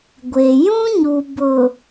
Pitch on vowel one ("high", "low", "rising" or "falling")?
low